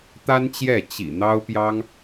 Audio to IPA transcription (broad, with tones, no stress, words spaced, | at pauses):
t̪a˥nt͡ɕjɛ˥˩ t͡ɕḭ˨˩ n̪ɑ˥ʊ̯pjɑ˥ŋ